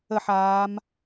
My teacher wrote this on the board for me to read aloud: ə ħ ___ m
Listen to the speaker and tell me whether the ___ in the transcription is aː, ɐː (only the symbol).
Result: aː